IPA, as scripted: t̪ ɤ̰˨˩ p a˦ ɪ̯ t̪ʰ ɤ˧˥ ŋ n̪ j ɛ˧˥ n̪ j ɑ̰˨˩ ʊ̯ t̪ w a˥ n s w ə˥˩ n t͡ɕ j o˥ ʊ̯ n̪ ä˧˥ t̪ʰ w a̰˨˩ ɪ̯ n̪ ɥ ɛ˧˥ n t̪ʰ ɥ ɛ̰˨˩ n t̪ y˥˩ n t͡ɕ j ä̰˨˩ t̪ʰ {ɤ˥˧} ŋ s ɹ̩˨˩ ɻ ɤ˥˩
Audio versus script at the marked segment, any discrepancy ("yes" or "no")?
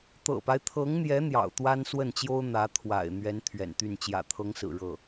yes